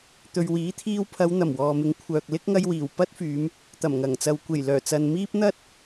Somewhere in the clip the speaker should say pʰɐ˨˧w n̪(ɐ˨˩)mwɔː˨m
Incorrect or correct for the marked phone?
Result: correct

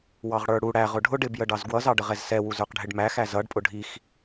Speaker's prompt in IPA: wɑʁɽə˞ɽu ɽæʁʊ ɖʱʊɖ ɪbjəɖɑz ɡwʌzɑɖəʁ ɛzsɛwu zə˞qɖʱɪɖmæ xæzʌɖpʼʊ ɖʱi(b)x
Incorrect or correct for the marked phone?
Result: incorrect: none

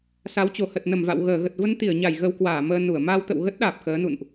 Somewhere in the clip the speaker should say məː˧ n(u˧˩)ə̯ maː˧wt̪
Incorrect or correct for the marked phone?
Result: correct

